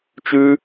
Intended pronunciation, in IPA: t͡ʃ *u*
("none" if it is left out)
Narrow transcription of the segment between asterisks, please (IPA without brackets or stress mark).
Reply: ʉ